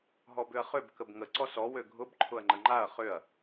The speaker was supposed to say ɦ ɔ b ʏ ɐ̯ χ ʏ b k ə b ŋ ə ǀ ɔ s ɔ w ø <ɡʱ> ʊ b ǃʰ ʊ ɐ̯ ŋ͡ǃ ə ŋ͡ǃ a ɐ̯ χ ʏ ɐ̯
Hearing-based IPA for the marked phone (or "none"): ɡʱ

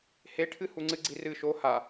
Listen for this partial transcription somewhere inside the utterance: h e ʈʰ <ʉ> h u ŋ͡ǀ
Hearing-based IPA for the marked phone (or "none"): ɨ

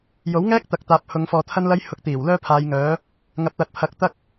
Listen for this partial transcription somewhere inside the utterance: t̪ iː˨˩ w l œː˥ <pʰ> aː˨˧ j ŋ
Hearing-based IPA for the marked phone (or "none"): pʰ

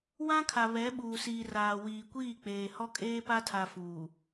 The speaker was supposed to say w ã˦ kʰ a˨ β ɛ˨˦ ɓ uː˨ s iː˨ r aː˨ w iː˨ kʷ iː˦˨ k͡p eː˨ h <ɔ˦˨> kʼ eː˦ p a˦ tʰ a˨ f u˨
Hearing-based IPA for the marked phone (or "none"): ɔ˦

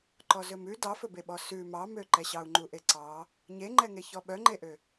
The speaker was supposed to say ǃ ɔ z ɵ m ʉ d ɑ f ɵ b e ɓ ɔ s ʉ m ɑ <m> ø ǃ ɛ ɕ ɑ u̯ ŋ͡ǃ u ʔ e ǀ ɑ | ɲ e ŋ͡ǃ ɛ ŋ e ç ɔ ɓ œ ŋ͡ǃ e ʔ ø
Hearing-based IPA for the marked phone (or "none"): m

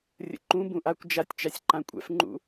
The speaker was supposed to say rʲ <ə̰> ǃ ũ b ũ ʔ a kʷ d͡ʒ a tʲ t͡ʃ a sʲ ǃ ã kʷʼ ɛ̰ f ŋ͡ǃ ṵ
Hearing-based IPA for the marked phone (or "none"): ə̰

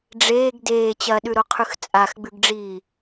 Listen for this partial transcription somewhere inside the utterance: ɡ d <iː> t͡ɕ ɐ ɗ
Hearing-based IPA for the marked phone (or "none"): eː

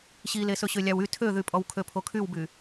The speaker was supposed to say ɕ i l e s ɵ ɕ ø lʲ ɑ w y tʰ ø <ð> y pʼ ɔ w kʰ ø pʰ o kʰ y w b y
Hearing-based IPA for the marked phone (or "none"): ð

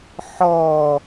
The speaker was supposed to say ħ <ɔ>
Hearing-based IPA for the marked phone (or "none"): ɔ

